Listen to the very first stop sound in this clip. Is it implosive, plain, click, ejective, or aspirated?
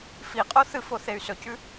ejective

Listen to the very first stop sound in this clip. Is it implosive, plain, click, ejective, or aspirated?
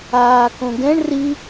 plain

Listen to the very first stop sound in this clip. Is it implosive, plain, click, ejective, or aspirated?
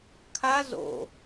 aspirated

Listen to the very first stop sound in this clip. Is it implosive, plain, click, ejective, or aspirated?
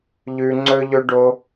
click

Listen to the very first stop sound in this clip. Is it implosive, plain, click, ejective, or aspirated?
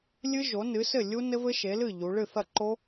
click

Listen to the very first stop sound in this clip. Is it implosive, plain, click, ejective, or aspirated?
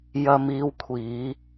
aspirated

